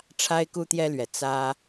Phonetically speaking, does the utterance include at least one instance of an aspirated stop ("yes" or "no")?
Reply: yes